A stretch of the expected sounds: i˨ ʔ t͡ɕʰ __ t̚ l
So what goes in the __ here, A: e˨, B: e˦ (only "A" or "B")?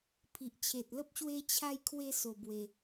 A